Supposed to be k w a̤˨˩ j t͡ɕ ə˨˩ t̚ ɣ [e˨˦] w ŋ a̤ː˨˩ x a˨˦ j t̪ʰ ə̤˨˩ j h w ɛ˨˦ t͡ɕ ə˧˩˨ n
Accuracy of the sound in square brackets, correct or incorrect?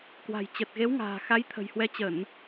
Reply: correct